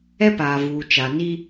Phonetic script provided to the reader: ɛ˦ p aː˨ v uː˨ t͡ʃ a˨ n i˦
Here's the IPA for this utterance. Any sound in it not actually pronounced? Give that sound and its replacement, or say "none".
none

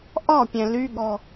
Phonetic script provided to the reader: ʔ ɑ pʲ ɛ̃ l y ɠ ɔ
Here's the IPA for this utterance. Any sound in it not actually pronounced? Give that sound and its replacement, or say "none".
ɑ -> ɒ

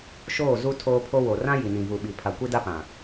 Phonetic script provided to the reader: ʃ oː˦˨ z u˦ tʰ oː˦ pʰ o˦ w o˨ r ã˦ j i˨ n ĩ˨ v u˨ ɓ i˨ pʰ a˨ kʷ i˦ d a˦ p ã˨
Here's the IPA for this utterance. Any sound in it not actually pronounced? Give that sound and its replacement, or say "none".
none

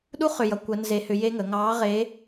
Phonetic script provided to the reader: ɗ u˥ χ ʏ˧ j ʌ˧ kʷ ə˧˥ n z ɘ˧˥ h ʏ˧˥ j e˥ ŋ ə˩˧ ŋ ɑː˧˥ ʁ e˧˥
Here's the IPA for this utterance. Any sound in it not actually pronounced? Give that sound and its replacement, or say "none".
ɘ˧˥ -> e˧˥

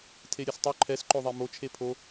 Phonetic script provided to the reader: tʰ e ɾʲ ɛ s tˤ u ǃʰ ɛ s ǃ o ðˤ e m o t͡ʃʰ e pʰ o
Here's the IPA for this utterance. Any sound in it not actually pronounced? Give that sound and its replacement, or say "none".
none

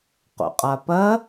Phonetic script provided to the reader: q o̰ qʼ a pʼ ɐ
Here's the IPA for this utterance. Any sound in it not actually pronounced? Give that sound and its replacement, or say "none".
pʼ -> p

